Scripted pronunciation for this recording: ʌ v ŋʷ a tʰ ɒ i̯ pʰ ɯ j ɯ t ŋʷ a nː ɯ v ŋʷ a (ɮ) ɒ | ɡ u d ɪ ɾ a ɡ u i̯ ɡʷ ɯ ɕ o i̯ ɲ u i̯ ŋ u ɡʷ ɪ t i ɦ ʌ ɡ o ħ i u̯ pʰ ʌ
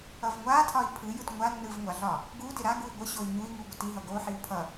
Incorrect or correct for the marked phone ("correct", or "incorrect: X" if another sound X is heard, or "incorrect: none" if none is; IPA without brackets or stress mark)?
correct